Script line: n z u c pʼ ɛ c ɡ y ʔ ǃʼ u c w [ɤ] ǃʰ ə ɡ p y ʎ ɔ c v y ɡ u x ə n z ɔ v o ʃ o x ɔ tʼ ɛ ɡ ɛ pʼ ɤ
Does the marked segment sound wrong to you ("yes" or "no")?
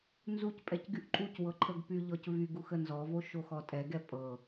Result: no